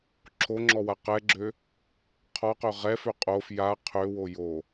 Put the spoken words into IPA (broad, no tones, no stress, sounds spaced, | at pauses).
ǁʰ o ŋ͡ǁ ɔ w a q ɛ ɡ͡ǁ ø | qʰ ɔ q ø ʁ ɛ f ø qʼ o f j a qʰ ø w o j o